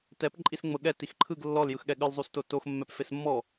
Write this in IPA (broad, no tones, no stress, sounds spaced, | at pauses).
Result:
t ɛ p ǃʼ i s ŋ͡m ɤ ɠ ɛ t i x ǃʰ ɯ ɡ lː ɔ l j ɯ x ɠ ɛ ɠ ɯ l zˤ u s t o t o x mː ɛ p f e s mː ɔ